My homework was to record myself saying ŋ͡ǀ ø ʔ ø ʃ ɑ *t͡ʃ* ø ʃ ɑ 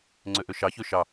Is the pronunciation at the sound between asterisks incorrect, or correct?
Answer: incorrect